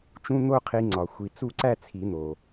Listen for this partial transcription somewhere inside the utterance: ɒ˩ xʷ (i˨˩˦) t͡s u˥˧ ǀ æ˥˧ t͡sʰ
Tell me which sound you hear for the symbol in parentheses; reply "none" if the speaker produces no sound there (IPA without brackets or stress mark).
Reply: i˨˩˦